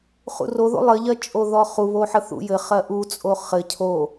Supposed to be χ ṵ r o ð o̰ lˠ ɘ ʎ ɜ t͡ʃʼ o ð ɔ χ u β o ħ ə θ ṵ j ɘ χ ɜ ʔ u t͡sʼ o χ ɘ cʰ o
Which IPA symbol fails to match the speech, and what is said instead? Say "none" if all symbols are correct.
none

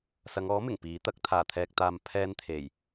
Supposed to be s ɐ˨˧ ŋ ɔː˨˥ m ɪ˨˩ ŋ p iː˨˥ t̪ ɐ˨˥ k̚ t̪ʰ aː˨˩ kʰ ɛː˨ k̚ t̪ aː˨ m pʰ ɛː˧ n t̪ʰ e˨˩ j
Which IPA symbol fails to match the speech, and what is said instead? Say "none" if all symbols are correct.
kʰ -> t̪ʰ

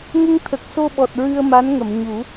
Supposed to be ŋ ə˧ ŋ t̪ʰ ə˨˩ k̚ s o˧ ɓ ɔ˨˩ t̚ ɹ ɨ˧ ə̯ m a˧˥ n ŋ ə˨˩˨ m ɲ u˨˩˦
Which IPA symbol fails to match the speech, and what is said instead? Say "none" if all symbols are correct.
none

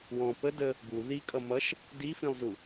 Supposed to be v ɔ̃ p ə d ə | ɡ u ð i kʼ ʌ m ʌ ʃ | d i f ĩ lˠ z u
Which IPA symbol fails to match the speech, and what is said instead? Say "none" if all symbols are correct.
v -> w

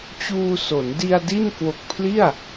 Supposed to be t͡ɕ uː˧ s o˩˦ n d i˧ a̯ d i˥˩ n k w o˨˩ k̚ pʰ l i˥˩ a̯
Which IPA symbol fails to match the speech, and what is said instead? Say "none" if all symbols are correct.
none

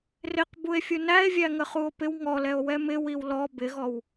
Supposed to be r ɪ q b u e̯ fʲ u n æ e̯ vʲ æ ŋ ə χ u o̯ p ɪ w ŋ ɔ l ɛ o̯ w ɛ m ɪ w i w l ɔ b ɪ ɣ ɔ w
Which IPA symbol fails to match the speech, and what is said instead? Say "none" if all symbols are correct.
none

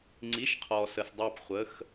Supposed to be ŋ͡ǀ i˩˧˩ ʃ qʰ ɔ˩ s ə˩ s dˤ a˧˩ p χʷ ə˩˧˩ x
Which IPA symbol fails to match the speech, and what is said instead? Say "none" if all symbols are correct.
none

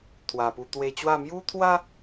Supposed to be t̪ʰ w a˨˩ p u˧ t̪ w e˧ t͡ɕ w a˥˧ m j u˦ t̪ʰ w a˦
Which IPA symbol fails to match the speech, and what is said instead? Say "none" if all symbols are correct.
none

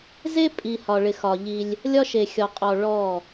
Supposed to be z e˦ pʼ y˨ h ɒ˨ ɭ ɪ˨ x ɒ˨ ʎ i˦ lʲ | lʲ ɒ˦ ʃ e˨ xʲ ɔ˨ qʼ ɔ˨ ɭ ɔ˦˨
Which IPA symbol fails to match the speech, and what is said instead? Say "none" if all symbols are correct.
y˨ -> i˨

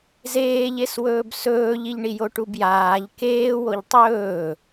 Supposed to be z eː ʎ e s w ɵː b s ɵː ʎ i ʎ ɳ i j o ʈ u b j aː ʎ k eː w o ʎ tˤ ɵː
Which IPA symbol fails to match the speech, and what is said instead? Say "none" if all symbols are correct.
none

